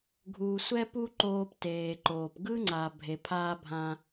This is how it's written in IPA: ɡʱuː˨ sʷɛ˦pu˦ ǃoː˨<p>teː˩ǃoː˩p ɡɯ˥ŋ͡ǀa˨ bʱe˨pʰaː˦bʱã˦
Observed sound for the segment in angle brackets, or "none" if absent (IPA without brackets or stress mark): p